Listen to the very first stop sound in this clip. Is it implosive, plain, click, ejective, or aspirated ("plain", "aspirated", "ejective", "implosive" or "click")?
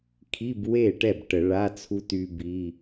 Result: aspirated